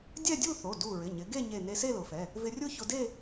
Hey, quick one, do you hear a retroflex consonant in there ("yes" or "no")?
no